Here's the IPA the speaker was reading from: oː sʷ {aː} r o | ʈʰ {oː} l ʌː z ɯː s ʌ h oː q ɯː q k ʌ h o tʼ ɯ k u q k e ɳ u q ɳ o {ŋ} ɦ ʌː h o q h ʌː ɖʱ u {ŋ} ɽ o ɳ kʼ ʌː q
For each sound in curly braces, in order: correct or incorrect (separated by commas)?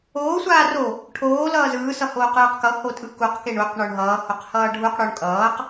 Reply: correct, correct, incorrect, incorrect